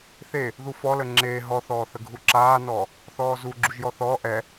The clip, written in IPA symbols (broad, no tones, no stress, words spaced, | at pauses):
θe | ðufɔlə ŋ͡ǁeː ɦɔθɔːθəɡʱu ǁaːnɔː | θɔːzu ɡ͡ǁuʒjɔθɔː ʔɛ